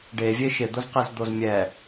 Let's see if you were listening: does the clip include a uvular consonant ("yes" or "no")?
yes